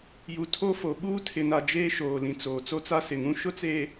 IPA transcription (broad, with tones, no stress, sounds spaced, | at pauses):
j u˨ tʰ o˦ f o˨ ɓ uː˦ tʰ ɪ˨ n a˨ d͡ʒ eː˦ ʃ oː˨ l ĩ˨ t͡s oː˨ t͡s o˦ t͡s a˦ s ɪ˨ ŋ ũ˦ ʃ ʊ˦ t͡s eː˨